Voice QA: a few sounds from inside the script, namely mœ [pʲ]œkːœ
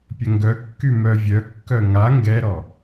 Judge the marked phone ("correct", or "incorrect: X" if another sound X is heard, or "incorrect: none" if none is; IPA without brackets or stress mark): incorrect: vʲ